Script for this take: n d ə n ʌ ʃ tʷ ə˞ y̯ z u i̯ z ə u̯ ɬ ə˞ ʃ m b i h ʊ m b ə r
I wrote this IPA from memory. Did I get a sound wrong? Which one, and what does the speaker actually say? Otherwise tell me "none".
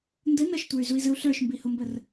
none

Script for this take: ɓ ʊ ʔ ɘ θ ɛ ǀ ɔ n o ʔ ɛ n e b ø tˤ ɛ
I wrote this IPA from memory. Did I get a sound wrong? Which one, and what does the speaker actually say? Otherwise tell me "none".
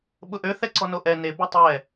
ɘ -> ø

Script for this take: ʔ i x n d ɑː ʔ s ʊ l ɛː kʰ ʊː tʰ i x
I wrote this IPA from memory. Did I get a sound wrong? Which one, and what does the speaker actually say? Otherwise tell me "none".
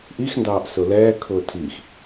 none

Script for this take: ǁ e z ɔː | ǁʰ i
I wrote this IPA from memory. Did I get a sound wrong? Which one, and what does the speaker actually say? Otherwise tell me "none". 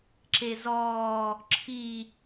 none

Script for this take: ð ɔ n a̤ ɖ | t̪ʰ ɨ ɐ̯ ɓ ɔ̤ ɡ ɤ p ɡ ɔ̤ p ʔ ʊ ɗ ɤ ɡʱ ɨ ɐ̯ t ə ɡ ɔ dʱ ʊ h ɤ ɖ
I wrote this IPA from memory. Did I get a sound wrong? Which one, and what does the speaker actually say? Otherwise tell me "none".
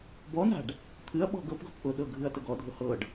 ð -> b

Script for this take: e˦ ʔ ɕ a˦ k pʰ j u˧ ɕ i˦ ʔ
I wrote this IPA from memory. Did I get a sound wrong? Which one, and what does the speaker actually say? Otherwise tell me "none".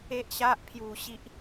k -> ʔ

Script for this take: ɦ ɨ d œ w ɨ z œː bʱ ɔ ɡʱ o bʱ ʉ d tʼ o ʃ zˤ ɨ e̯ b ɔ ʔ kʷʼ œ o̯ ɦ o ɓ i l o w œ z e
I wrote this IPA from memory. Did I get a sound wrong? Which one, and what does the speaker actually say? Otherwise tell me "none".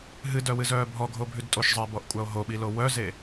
none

